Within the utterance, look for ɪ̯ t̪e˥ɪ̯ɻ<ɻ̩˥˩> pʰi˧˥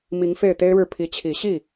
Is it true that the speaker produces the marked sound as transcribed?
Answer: yes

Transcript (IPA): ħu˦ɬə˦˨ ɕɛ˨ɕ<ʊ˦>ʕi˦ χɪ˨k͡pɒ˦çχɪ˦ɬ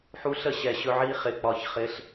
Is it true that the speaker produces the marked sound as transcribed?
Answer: no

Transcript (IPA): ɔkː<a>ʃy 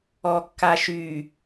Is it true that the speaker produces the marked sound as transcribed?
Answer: yes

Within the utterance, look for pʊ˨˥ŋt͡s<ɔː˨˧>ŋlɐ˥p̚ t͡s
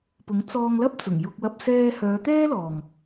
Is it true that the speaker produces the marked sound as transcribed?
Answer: no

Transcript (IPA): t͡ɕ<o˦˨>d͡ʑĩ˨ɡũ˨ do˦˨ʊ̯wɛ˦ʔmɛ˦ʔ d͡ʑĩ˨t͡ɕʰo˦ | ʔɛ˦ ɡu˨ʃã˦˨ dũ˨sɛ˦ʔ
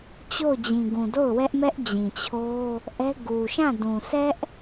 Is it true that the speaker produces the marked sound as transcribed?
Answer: yes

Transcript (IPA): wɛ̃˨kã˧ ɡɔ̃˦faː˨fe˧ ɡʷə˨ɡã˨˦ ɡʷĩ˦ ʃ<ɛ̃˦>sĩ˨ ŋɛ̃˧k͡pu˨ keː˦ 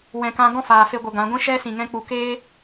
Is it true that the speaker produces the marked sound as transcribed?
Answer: no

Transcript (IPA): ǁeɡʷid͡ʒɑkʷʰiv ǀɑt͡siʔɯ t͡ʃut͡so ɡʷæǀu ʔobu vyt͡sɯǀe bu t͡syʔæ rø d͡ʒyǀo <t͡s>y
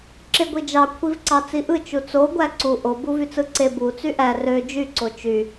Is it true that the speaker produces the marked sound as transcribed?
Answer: no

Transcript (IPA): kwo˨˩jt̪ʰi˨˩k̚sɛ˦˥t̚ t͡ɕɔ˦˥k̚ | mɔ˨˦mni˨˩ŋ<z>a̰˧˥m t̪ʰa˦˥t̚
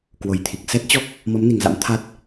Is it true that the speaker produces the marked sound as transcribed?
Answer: yes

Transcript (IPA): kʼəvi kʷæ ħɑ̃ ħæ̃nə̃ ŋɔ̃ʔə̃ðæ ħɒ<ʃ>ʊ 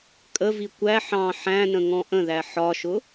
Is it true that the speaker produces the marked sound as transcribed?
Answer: yes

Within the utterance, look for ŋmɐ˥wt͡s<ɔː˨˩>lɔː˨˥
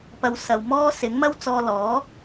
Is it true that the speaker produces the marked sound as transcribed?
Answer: no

